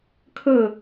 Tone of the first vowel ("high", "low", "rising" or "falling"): falling